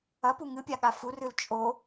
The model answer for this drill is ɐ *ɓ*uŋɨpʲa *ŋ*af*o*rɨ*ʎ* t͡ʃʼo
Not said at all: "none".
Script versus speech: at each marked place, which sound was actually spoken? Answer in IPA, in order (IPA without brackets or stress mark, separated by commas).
p, ɠ, u, l